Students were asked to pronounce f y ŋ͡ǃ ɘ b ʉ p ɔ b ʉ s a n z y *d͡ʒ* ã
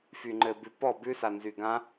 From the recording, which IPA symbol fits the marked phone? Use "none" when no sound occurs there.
ɡ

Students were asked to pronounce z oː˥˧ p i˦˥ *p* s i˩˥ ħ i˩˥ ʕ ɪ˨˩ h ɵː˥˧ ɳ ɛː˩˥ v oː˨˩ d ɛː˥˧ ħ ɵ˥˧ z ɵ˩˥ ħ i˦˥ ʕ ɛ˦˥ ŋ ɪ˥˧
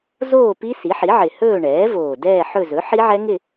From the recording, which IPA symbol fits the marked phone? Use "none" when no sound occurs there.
none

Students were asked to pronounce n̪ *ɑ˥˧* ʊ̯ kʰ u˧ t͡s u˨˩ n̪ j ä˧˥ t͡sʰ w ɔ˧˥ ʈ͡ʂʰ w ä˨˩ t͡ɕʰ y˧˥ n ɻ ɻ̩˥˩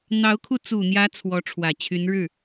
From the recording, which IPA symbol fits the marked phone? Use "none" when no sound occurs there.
ɑ˧˥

